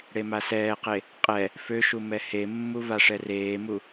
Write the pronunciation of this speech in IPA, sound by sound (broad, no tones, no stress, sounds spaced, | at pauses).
ɽ e m a s ɛː q e | qʼ ɛ | f ø ʃ u m ɛ h e mː u v a ʂ ɛ r eː m u